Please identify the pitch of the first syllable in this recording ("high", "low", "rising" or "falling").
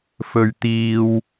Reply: low